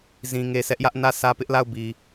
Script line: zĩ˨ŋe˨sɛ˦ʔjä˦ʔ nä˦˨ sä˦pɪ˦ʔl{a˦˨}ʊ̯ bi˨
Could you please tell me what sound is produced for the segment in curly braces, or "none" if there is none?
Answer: a˦˨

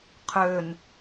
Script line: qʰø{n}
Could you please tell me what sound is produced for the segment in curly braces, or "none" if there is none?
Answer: n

